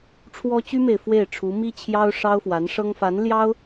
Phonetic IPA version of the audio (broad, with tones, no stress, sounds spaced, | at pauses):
ʈ͡ʂʰ w ɔ˥ t͡ɕ y˥ m e˨ ɪ̯ f w e˥˩ ɪ̯ ʈ͡ʂʰ u˧˥ m i˥ t͡ɕʰ j ɑ˥ ʊ̯ ʂ ɑ˥ ʊ̯ f w a˧˥ n ʂ ɤ˥ ŋ f a˧˥ n l j ɑ˥ ʊ̯